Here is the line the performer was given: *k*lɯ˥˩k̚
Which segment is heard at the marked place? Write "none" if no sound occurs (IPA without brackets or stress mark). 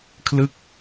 kʰ